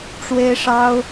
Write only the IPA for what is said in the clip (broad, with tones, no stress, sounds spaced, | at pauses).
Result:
ʈ͡ʂ w e˥ ɪ̯ ʂ ɑ˥ ʊ̯